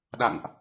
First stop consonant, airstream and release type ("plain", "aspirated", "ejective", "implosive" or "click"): implosive